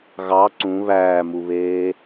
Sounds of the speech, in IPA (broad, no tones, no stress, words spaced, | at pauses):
ɣɑ ǀũ βæːmuβeː